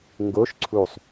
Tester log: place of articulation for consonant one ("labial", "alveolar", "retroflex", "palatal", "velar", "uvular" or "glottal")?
velar